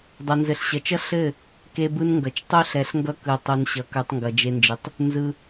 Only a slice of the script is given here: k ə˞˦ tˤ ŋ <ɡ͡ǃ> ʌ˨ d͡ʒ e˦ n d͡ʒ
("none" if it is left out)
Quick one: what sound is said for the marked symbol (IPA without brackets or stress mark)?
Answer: ɡ